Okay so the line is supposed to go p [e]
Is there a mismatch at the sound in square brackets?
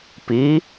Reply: yes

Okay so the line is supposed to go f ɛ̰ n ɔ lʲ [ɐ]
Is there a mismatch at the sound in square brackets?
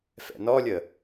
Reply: yes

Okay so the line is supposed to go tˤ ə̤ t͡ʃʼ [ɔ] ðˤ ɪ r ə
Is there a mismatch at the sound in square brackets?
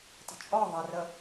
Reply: no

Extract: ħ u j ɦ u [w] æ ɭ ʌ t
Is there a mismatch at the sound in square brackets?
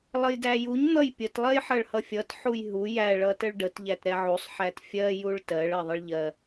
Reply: yes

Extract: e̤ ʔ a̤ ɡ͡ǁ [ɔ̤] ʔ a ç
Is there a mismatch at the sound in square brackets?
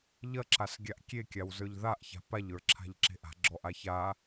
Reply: yes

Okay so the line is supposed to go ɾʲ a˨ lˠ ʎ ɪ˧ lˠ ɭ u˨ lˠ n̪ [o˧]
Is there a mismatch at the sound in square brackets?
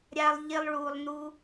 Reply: yes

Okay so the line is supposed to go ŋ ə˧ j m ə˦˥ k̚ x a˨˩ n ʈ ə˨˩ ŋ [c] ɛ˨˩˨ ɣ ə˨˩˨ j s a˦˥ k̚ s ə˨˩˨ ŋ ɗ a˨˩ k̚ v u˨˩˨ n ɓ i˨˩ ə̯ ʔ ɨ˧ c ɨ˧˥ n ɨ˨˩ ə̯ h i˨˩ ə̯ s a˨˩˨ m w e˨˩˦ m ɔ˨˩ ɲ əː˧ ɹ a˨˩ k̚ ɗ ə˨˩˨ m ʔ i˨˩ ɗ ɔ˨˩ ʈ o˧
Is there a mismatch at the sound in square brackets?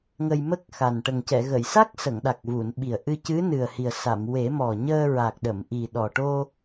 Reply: no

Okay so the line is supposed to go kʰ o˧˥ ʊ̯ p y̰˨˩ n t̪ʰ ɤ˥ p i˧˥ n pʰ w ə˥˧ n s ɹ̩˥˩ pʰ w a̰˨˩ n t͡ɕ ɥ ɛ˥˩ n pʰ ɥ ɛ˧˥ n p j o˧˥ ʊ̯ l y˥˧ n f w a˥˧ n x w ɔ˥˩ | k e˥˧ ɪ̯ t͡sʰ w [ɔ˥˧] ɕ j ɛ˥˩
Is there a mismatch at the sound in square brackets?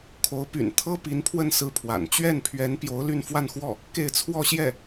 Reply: no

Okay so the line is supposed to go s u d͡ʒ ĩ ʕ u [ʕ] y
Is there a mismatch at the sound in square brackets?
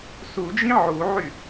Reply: no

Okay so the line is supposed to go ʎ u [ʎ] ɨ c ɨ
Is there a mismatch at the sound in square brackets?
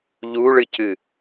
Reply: yes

